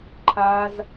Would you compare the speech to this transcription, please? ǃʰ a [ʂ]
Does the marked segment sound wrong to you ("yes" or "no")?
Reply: yes